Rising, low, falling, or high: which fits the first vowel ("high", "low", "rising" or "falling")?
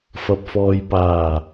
low